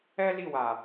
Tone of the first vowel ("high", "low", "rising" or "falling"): high